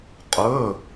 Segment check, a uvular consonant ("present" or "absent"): present